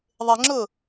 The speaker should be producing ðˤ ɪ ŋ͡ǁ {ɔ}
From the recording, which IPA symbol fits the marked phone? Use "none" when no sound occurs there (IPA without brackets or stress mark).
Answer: ʊ